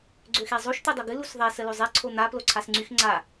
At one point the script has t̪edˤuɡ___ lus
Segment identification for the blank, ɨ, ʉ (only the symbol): ɨ